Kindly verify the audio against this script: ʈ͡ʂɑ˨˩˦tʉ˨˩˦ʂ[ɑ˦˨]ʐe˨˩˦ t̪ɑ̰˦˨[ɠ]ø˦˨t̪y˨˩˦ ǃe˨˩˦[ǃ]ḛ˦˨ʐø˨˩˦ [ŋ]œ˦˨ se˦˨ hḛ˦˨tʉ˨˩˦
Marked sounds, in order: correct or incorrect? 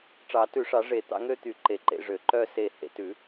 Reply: incorrect, incorrect, correct, incorrect

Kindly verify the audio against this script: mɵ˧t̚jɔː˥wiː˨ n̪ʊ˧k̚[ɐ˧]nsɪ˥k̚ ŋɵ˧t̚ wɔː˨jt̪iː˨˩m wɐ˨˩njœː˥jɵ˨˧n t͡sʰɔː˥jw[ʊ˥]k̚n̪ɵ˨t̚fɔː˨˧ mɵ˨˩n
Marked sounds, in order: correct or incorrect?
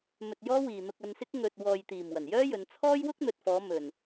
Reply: correct, correct

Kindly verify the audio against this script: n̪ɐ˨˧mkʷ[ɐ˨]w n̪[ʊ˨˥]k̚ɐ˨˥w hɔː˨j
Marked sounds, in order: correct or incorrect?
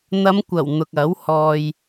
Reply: incorrect, incorrect

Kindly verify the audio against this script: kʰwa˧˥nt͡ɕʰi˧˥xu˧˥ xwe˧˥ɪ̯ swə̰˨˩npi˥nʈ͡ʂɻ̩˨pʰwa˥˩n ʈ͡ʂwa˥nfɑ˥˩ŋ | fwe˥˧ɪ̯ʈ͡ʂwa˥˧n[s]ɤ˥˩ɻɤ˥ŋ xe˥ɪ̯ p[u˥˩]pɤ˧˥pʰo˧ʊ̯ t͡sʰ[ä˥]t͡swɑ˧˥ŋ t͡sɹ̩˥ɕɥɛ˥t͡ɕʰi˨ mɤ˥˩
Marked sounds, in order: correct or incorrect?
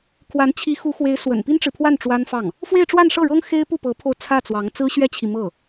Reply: incorrect, correct, incorrect

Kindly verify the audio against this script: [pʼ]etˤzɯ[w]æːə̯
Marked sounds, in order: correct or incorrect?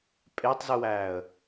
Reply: correct, correct

